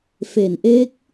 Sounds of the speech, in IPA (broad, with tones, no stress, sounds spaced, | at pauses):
f e˩˦ n ʔ e˦˥ k̚